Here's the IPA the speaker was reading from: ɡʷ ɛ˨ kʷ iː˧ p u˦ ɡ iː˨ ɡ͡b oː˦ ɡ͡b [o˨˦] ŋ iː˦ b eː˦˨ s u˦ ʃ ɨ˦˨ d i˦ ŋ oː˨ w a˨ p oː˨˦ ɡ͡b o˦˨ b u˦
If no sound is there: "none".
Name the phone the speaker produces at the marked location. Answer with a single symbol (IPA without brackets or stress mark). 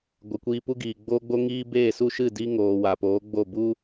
o˦